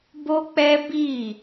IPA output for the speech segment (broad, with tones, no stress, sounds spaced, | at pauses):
b o˦ k͡p ɛ˦ b i˦˨